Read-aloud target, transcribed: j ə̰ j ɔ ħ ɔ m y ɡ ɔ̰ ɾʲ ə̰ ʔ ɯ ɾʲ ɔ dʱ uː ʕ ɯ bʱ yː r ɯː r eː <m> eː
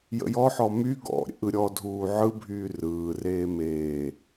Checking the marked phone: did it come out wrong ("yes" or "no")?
no